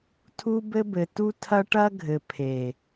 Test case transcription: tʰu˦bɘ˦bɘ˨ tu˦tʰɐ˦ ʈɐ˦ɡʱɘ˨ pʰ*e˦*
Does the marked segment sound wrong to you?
yes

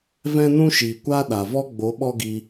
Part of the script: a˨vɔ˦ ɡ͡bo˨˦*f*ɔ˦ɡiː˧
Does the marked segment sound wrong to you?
yes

